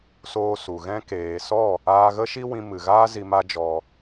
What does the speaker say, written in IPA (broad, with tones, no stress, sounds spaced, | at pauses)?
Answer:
s oː˦ s u˨ ɣ ɛ̃˧ k eː˨ s ɔ˦˨ | aː˧ ɣ ə˦ ʃ i˦ w ĩ˧ m ɨ˨ ɣ aː˦ z i˧ m a˦ d͡ʒ ɔ˧